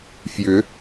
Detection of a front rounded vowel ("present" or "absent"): present